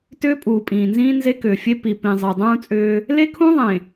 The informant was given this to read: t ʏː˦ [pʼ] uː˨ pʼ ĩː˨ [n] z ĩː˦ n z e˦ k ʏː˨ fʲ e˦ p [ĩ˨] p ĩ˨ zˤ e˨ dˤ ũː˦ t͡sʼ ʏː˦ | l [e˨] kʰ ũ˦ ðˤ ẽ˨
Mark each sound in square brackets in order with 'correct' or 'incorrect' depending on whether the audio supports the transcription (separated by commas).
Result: correct, correct, incorrect, incorrect